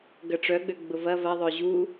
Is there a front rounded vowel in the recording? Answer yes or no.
yes